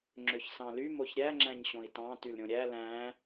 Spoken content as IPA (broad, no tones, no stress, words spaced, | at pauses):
ŋ͡ǁøçsɑ̃ly moçɾʲæ ŋ͡ǁæ̃ɲɕõi̯tɑ̃ tylɾʲõɾʲæ læ̃